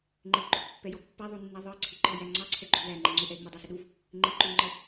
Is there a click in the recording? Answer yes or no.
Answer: yes